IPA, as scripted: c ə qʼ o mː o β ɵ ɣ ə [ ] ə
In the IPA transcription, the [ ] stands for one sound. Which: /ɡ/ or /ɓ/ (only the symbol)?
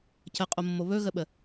ɓ